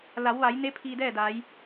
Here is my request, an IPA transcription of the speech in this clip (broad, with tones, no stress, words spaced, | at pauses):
la˩˧wʋa˩˧jne˧˥ pʰiː˧dɛː˥˨da˩˧j